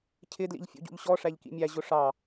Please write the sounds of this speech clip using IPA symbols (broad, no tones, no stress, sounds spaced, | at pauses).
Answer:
cʰ ɪ d l ḭ ʎ fʲ ṵ ɟ ṵ ʎ ɕ ɔ ʂ æ ʎ k ḭ mʲ æ ʑ ʊ ʂ ɑ